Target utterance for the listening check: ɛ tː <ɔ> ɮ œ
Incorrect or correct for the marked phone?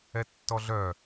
correct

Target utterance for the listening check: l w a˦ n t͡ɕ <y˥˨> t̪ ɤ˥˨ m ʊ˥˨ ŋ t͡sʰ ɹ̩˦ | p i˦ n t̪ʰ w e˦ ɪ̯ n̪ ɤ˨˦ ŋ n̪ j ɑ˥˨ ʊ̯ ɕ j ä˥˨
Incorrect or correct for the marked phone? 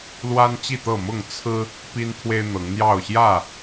incorrect: i˥˨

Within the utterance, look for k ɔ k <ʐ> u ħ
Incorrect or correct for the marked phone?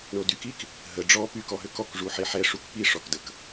correct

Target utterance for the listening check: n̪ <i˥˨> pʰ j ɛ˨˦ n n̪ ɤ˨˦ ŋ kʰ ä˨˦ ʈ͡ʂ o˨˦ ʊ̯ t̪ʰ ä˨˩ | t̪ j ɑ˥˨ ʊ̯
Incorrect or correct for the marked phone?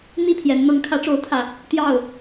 correct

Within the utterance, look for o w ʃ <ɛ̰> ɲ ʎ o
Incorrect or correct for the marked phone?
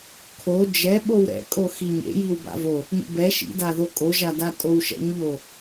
correct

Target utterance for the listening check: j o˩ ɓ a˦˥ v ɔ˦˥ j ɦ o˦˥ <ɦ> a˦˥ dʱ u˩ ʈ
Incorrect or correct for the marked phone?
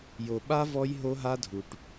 correct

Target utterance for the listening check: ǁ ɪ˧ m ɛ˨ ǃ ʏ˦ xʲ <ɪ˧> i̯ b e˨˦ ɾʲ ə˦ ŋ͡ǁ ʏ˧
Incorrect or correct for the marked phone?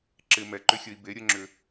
incorrect: ə˧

